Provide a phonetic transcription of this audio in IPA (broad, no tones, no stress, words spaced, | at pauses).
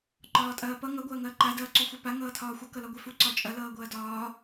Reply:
ǃɒːtʼɐːpʌ ŋʌ ɡʷɐːŋɐːǃa dɐːǀuxʷɛpa ŋʌːtʰɒːxʷʌ kʌlɒɡʷɛfu ǀɒt͡ʃʼɐ lʌːɡʷɐːdɒː